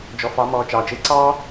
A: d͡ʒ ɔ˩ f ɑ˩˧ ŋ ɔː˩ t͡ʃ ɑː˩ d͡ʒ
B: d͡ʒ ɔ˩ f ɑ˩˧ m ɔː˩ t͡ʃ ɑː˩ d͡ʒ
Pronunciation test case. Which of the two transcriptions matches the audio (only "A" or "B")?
B